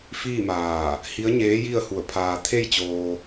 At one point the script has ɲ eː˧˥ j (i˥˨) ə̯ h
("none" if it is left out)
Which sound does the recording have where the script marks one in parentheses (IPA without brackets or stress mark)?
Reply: i˥˨